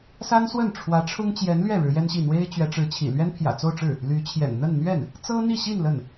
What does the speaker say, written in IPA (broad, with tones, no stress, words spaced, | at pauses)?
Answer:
sa˥nswə˥˩n ʈ͡ʂʰwä˧˥ʈ͡ʂʰʊ˥ŋ t͡ɕjɛ˧˥nlɥɛ˥˩ ɻɻ̩˧˥jɛ˥nɕi˥˩ n̪we˥ɪ̯ t͡ɕɥɛ˧˥ʈ͡ʂɻ̩˧˥t͡ɕʰḭ˨˩ lɥɛ˥npʰjä̰˨˩t͡so˥˧ʊ̯ʈ͡ʂɻ̩˥˩ | ly˧˥t͡ɕʰjɛ̰˨˩n n̪ə˥˧nn̪ɥɛ˥˩n | t͡sɤ˥n̪i˥˧ɕi˥˧n lə˥˩n